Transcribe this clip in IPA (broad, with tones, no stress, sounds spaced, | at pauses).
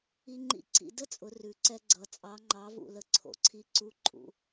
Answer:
i˧ ŋ͡ǃ ḭ˧˥ ǀ ḭ˧ d ə˥ t͡sʼ ʊ˩˧ r ʉ˩˧ ǀ ɛ˧ ɡ͡ǀ ʌ˩˧ t͡sʼ ɑ˧˥ ŋ͡ǃ ɑ˧˥ v ṵ˧ l ə˧ ǀʰ o̰˩ ǀʰ i˧ ǀ u˧˥ ǃʼ ṵ˩˧